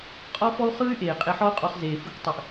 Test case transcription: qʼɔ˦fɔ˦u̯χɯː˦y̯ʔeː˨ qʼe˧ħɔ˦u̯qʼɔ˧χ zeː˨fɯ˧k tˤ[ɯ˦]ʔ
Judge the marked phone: incorrect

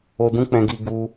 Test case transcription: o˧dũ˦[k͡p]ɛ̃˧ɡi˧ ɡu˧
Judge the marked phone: correct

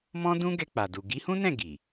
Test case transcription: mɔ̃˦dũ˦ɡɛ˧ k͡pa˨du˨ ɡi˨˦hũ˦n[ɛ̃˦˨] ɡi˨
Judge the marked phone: correct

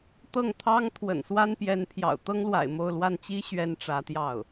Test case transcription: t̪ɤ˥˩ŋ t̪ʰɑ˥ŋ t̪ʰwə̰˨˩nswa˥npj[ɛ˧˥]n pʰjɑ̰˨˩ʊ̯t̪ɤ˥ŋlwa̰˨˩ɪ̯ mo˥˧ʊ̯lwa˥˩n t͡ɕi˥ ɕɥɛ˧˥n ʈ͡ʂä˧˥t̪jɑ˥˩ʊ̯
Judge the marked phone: correct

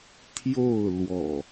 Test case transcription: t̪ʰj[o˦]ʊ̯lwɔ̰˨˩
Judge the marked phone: incorrect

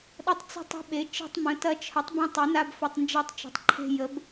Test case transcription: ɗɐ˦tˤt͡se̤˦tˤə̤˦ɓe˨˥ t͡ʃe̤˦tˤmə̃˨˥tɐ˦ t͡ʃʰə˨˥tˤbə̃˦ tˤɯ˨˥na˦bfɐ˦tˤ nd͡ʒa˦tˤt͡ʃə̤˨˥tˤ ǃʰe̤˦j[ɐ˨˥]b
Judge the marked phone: incorrect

